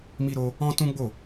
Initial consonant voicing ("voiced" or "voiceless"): voiced